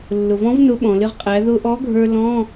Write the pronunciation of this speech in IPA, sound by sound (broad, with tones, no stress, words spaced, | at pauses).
lːʊ˩vɔ̃˨˥v nʊ˨˥ ɓɔ̃˩lɪ˧ʁqʼæ˩˧ ðʊ˧ʔɔ˨˥ɡʱə˞˧ lɔ̃˧˥˧